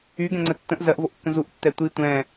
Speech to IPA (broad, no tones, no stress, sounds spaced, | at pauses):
y ɡ ɛ̃ ŋ͡ǀ ə tː ə̃ ʔ z ɜ ʔ v o ʔ kː ə̃ z u ʔ tː ɛ tʷ i tʷ ɛ̃